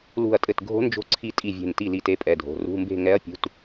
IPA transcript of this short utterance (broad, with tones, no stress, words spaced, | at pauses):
lṳ˧˩ɐ̯tʼɘ˧˩t ɡʱo̤˨˦nd͡ʒo̤˧˩ǀʰi˧˩ tʼi˧˩vʲe̤˧˩nti˧˩ li˧˩te˨˦pʼɛ˩˧˩dʱo̤˩˧˩ rṳ˩˧˩mbe̤˧˩ ŋɛ˨˦ɐ̯pʲṳ˩˧˩t